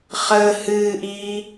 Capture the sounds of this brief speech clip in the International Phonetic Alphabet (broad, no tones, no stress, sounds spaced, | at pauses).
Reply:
χ əː h ɨː ʔ iː